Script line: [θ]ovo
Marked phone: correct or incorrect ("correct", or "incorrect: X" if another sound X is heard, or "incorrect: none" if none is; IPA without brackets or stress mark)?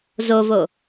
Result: incorrect: z